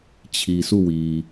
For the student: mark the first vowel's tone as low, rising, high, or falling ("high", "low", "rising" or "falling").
low